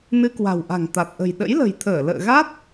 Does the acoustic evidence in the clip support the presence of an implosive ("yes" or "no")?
yes